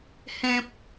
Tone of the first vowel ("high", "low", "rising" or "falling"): low